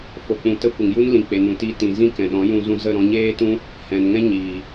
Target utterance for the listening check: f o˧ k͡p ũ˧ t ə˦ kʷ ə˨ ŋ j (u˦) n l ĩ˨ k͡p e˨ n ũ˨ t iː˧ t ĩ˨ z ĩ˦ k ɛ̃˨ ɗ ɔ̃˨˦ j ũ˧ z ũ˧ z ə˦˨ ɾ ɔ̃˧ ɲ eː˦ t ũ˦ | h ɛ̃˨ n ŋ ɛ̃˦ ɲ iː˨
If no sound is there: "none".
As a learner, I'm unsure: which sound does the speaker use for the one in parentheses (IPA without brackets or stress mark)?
u˦